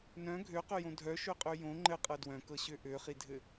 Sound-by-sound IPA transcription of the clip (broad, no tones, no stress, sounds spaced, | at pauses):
n œ̃ ɡʱ ø q ø j õ dʱ œ ʃ ø qʼ ø j õ ŋ͡ǃ ɘ qʼ ɤ d w œ̃ k ɤ ɕ ø ʔ ø χ i dʱ ɘ